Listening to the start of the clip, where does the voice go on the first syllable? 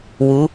rising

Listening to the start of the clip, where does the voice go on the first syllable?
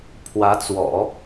rising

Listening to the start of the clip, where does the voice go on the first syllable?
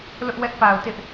high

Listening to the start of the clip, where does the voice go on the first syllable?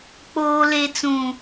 low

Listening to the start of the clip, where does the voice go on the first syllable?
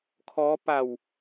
rising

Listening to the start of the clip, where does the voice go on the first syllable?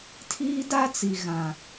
high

